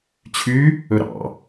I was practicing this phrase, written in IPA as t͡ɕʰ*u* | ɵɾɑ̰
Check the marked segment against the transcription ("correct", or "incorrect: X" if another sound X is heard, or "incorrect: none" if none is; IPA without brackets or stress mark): incorrect: y